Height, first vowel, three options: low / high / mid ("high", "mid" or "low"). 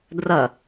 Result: low